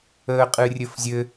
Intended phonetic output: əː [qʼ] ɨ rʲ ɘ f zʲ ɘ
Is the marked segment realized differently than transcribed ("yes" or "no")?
no